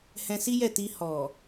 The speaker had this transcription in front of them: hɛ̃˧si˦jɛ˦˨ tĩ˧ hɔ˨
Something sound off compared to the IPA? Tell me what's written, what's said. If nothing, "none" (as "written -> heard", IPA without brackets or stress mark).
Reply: ĩ˧ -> i˧